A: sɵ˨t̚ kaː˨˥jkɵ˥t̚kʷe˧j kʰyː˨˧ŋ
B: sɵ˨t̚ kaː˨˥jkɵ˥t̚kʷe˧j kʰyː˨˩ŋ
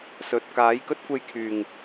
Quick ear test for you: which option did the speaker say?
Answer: B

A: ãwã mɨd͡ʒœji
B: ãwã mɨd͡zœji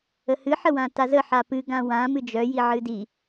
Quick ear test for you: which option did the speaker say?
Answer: A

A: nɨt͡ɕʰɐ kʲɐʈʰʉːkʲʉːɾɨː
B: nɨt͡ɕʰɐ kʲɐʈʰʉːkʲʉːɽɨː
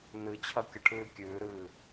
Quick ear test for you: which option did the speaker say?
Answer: A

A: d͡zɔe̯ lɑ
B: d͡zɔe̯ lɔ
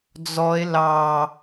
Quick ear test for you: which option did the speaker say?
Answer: A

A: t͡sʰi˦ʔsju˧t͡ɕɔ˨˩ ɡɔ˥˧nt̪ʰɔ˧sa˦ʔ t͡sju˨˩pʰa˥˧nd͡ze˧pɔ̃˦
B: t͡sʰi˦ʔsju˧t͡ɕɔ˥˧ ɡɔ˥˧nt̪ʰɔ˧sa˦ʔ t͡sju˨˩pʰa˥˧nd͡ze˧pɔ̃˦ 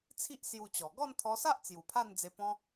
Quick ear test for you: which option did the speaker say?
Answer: A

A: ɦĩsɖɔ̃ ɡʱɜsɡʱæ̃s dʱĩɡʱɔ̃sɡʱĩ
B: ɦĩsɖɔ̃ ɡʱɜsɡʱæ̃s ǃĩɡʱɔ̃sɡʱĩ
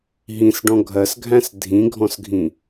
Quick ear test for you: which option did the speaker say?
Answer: A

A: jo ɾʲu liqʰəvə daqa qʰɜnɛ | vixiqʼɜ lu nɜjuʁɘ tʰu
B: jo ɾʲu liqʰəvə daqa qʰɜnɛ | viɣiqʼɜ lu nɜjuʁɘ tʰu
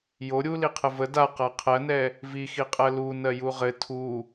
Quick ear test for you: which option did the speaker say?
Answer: A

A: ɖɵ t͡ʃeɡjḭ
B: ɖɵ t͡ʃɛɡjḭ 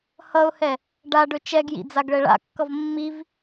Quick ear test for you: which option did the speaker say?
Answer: B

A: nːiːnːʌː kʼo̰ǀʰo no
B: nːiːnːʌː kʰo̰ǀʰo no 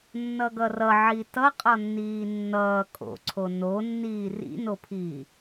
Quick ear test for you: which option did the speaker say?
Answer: A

